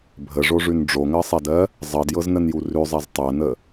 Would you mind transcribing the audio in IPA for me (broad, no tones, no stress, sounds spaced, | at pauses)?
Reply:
bʱ ə ʐ o ʐ ʉ n ɖ͡ʐ o ŋ ɜ sˤ ɛ d ɜ | zˤ ɜ d j ɤ z n ə n j u r ʉ zˤ ɛ z tˤ ɜ n ə